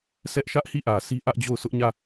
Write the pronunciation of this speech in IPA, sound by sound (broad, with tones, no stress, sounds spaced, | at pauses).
s ɛ˦ ʔ ʃ ä˦ ʔ h i˦˨ ʔ ä˨ sʰ i˦ ʔ ä˦ ʔ d͡ʑ o˦˨ ʊ̯ s ʊ˦ ʔ ɲ ä˦˨